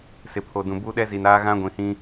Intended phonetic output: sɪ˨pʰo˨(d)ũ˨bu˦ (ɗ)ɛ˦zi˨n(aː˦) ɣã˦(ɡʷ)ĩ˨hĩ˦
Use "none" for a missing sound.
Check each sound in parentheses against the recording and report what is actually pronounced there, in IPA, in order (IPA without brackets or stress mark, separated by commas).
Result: d, ɗ, aː˦, ɡʷ